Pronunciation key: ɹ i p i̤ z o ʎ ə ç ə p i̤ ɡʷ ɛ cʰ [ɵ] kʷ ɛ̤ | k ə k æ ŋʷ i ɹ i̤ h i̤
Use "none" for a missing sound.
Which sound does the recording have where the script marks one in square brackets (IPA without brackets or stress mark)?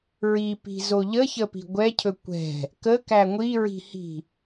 ɵ